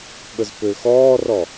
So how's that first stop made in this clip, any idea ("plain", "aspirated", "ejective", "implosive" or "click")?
implosive